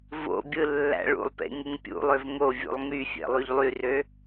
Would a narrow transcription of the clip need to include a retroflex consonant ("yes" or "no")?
yes